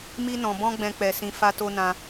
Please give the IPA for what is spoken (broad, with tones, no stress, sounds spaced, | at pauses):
m i˧ n ɔ̃˨ b ɔ̃˧ ɡ͡b ɛ̃˨ k͡p ɛ˨ s ĩ˨ f a˧ t o˧ n ã˧